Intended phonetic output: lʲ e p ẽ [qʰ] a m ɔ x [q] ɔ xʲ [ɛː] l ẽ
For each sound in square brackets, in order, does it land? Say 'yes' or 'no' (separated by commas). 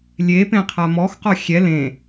yes, yes, no